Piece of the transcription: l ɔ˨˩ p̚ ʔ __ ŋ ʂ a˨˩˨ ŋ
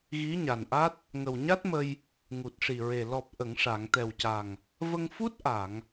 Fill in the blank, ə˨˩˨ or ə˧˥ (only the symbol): ə˨˩˨